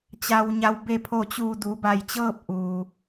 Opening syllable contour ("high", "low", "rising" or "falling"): low